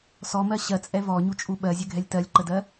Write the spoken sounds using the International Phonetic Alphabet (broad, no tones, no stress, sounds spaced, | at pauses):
s ɔ m ɜ ɕ ɜ t͡sʼ ɛ v ɔ ɲ u t͡ʃʼ u ɓ ɜ zʲ ɘ ɡʱ ɛ lʲ t ɜ lʲ ǃ ə d ɜ